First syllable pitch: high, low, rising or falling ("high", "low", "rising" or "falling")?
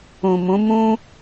low